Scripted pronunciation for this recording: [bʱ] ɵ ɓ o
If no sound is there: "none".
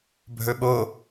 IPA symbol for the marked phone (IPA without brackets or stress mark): bʱ